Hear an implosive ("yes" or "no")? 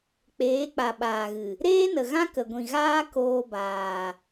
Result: yes